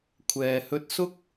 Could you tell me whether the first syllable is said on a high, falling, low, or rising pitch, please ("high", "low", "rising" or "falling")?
low